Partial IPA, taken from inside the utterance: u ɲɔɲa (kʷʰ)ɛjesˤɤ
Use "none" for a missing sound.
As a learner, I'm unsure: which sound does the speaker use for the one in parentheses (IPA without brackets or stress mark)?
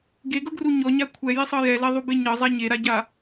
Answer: kʷʰ